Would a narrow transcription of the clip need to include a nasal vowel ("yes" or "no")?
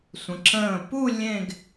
yes